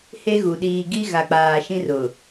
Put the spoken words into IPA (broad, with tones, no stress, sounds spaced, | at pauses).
h e˦ ɣ u˨ ɗ iː˨ ɡ i˦ ɣ a˨ k͡p aː˨ ʃ ĩ˦ r ʊ˨